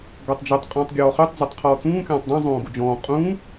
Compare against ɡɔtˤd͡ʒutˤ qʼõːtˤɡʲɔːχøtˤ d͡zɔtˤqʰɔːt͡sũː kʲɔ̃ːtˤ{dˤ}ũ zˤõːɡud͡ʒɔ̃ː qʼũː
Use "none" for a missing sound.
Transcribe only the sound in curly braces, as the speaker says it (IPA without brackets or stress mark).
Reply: dˤ